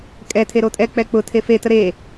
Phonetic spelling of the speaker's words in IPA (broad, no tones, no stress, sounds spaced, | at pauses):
kʼ ɛ tʰ e ɾ o tʼ ɛ k͡p ɛ k͡p ʊ tʰ e f e t ə ɾ e